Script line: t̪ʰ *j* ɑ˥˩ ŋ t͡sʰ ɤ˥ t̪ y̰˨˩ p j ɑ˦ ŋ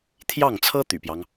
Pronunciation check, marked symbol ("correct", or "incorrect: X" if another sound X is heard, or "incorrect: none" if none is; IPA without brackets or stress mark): correct